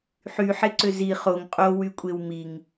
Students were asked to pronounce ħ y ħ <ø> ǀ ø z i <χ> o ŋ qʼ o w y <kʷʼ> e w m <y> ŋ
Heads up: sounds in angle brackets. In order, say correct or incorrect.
incorrect: e, correct, correct, incorrect: i

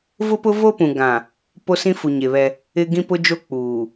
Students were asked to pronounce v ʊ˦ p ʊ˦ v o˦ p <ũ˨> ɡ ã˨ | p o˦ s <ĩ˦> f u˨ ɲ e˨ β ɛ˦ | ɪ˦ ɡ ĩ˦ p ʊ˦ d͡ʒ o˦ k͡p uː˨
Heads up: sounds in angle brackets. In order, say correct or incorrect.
correct, correct

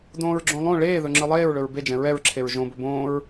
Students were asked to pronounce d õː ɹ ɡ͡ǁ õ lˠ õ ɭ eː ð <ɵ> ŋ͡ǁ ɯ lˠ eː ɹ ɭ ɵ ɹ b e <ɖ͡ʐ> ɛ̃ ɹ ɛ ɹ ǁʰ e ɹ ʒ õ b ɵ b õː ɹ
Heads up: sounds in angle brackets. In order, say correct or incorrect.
correct, incorrect: d͡ʒ

